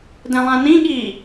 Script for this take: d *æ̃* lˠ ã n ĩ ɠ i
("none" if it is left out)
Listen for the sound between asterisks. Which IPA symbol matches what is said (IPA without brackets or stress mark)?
ɛ̃